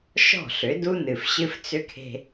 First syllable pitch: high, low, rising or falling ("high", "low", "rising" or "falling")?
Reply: falling